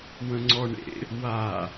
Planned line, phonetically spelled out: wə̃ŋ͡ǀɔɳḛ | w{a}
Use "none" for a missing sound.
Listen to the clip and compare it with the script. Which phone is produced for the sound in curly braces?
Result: a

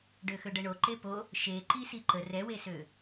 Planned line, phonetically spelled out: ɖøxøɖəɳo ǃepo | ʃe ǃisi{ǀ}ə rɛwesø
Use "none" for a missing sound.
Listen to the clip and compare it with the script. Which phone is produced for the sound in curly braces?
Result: ǃ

